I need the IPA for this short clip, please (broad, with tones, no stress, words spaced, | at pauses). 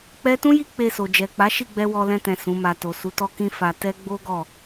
k͡pɛ˦ tũ˦ji˦ k͡pe˧so˨ d͡ʒɛ˨k͡pa˨˦ʃi˦˨ɡ͡bɛ˧ wɔ˧lɛ̃˧tɛ̃˨ sũ˨˦ma˧ to˨su˨˦tɔ˦ kĩ˦fa˧ tɛ˦ ɡ͡bo˦ɡɔ˦˨